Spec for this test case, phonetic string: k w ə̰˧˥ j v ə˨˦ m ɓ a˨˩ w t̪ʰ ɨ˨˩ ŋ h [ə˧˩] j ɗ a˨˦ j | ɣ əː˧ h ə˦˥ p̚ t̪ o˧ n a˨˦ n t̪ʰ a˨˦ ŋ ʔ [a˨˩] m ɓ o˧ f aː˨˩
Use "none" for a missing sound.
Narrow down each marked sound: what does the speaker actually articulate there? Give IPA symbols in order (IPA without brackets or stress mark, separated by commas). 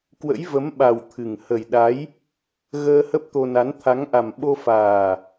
ə˨˩, a˨˩